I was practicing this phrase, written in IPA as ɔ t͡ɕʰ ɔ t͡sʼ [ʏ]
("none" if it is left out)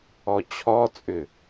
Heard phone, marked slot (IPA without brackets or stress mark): ʏ